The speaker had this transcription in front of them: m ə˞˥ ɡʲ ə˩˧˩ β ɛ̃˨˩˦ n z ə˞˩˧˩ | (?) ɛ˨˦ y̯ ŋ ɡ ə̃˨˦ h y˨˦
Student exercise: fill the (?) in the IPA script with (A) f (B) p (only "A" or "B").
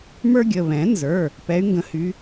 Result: B